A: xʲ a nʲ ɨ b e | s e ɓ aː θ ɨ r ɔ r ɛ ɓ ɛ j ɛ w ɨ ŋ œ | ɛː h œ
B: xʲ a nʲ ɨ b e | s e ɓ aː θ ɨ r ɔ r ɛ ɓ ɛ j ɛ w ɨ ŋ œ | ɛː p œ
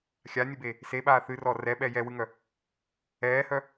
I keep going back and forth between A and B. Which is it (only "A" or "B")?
A